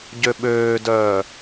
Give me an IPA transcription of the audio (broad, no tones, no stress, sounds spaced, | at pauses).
ɟ ø ɓ øː d œː